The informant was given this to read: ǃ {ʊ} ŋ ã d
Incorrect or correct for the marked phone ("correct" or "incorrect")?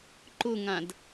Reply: correct